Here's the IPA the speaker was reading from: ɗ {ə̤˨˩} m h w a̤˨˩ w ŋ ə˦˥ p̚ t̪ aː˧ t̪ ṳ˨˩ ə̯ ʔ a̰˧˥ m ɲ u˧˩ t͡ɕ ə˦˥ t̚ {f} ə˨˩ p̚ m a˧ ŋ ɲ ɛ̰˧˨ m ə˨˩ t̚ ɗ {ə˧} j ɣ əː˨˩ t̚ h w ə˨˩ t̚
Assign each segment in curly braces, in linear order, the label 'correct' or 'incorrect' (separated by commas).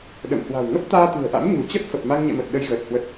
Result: incorrect, correct, correct